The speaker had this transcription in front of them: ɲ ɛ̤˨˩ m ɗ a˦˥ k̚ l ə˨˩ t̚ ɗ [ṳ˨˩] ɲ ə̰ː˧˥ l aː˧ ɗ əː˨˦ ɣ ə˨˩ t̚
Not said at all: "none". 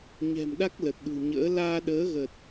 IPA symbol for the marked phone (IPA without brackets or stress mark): ṳ˨˩